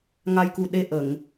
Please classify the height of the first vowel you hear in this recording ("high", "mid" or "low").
low